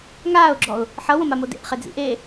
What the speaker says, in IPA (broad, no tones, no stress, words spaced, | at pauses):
ŋaːʊ̯ɡ͡ǁɔʊ̯ | ħʌwõmamo dḛʔχed͡zḭ ʔe